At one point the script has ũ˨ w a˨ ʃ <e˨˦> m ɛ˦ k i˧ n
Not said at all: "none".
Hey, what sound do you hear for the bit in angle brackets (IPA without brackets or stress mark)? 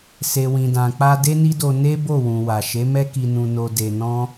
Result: e˨˦